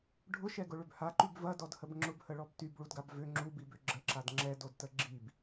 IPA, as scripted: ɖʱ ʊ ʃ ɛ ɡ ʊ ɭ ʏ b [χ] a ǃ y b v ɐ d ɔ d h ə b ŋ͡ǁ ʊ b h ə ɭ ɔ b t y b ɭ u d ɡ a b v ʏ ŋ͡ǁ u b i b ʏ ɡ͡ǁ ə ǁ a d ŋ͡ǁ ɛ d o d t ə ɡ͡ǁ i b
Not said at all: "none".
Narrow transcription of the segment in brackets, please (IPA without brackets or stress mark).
h